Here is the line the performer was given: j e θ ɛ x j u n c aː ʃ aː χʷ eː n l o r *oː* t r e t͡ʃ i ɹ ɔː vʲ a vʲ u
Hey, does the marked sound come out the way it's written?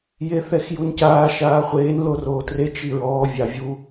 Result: yes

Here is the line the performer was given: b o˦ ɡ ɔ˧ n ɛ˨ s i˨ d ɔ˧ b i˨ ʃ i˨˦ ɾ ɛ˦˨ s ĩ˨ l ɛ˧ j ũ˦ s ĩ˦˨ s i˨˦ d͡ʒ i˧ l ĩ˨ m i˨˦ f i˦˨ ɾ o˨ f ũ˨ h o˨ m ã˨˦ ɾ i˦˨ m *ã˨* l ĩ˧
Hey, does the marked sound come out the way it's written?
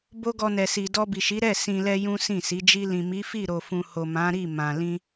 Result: yes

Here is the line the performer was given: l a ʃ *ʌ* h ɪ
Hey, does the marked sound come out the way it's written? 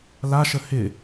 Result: no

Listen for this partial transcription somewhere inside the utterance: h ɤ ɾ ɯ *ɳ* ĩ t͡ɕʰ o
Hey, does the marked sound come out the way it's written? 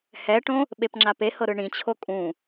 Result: yes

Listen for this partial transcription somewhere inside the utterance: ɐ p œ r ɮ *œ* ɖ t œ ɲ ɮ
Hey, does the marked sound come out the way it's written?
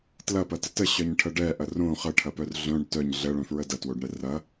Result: no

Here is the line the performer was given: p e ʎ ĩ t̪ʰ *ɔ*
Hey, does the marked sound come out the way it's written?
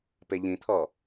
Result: yes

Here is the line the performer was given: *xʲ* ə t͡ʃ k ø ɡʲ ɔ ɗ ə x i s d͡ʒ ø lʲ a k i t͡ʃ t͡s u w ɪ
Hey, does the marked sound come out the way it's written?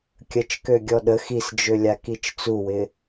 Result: no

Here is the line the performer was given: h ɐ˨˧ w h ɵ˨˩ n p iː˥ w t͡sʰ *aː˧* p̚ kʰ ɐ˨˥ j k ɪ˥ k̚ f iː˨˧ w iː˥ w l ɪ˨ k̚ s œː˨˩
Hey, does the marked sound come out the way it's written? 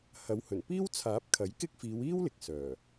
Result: no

